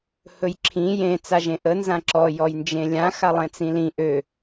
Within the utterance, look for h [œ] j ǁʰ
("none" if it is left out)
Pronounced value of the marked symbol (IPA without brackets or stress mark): ɵ